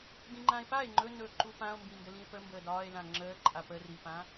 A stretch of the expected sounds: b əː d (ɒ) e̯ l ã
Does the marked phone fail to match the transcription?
yes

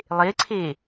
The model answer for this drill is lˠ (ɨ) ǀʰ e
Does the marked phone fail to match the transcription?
yes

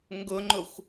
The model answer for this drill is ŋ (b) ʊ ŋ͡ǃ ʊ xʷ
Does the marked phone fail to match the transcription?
yes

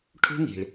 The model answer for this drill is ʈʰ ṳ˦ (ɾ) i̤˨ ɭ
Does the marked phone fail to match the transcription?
yes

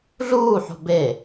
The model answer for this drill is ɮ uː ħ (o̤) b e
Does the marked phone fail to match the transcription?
no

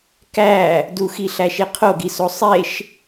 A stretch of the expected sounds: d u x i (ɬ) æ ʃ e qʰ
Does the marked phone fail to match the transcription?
no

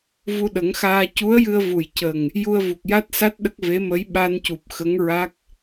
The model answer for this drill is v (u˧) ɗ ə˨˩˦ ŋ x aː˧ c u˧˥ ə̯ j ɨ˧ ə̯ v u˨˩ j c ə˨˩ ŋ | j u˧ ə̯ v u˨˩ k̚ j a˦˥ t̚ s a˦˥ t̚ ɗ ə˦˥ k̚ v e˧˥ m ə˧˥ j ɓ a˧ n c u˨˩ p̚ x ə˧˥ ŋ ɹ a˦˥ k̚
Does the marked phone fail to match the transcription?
no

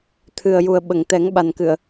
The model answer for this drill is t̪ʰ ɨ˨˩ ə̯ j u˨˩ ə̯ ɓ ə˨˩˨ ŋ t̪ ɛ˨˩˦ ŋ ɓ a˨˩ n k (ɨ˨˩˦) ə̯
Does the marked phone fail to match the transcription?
yes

